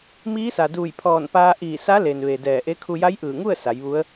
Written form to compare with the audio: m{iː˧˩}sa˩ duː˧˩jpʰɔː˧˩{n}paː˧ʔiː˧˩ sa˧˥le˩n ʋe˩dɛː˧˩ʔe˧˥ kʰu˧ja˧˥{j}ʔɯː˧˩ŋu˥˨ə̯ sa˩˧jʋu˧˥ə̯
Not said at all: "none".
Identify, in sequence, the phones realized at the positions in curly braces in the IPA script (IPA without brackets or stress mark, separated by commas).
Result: iː˧˥, n, j